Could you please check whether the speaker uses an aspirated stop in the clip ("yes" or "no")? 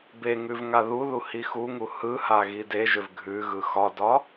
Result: no